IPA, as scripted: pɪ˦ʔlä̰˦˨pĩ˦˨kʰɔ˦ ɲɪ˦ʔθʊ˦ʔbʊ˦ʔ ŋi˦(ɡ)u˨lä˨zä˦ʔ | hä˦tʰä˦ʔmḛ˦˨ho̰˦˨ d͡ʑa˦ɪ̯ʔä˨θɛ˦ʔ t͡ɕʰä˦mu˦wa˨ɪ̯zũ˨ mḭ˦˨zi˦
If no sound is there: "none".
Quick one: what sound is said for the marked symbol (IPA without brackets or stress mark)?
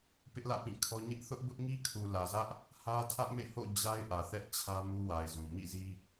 kʰ